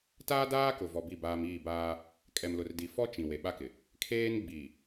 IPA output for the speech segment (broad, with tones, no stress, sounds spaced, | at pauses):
t aː˦ d aː˦ k ʊ˨ v ɔ˨ b i˦˨ b aː˦ m iː˦˨ b aː˦ | kʼ ɛ˨ m l ʊ˨ r d i˨ f ɔ˦ t͡ʃ ĩ˨ w e˨ ɓ a˦ k ɪ˨ | kʰ eː˦ n ɡ͡b iː˨